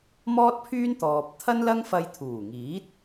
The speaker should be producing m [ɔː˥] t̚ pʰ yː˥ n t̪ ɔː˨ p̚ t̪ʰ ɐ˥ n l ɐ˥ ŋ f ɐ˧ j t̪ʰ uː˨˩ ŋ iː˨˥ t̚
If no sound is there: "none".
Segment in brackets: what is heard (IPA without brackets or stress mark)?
ɔː˥